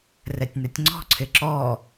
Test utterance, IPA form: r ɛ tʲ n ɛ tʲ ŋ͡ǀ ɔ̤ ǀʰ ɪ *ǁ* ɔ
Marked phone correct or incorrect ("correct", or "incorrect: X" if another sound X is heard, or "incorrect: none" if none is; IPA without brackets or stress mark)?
correct